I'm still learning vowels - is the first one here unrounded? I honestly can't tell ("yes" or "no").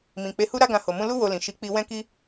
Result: yes